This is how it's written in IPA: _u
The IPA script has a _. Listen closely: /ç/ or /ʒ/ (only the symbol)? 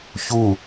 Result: ç